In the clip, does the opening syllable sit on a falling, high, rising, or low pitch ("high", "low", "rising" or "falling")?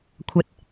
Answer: low